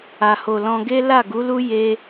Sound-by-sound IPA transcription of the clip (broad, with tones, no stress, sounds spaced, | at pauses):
a˨ h o˨ l ɔ̃˧ ɡ e˦ l a˦˨ ɡ u˨˦ l u˦ j e˦